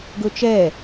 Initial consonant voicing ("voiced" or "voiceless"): voiced